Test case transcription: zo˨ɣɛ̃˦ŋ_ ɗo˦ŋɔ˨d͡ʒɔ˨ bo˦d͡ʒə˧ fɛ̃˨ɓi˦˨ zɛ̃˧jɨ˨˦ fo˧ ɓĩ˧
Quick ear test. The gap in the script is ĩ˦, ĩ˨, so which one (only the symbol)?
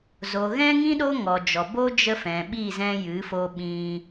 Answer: ĩ˦